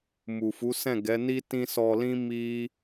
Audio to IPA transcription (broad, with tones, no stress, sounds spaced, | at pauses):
m u˨ f u˨˦ s ɛ̃˦˨ ɡ ɛ˨˦ n i˦ t ĩ˧ s ɔ˧ l ĩ˦ m i˦